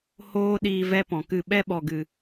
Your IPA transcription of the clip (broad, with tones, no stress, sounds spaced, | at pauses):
h oː˦ ɗ iː˧ v ɛ˦ p ɔ̃˨ k ɨ˦˨ ɓ ɛ˦ ɓ ɔ˨ ɡ ɨ˨